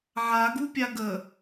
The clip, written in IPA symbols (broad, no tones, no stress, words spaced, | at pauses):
ʕaɡupʲa ɡə